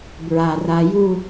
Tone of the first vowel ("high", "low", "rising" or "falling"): low